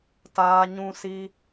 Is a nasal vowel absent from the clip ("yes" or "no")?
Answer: no